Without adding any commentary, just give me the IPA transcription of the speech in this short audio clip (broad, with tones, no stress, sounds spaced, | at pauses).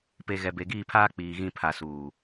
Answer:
p e˨ ɣ ɛ˨ b e˨ ɡ iː˦˨ pʰ aː˦ k͡p iː˨ ɣ ĩ˦˨ pʰ a˨ s uː˨